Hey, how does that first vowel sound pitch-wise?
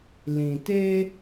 low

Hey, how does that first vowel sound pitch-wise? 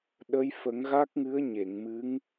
rising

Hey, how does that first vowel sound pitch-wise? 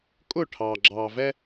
falling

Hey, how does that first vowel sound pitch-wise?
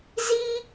high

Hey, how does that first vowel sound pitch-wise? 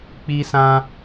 high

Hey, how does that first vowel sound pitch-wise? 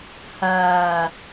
low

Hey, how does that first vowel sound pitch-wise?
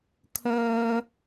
high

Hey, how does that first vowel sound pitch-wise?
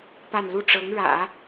falling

